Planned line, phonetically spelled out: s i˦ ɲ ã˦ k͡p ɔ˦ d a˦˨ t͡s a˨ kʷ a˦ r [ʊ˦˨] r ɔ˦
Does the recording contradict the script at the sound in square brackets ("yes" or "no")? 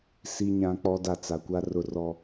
no